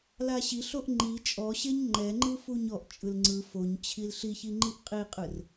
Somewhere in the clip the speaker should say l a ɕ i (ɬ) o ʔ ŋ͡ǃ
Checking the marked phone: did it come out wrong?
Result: no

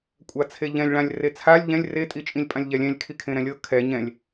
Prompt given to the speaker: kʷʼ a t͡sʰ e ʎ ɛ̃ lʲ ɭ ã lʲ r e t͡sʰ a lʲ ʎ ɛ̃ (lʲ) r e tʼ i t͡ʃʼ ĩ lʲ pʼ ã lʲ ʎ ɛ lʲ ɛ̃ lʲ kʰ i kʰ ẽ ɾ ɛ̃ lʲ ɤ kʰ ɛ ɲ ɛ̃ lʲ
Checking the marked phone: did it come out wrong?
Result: no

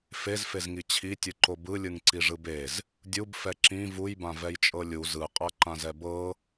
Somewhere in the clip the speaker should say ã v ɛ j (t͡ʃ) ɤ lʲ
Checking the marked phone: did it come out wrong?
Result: yes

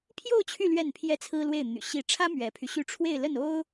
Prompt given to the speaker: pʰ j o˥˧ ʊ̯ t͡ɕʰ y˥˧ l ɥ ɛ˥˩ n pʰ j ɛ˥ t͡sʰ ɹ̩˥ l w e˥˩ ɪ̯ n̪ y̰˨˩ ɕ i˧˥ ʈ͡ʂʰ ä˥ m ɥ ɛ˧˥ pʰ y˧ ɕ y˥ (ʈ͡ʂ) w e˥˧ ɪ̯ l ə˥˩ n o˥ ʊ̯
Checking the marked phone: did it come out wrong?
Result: yes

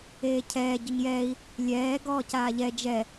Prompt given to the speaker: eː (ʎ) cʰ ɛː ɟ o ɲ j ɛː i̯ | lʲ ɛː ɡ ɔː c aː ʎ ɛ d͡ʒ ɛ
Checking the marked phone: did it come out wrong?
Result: yes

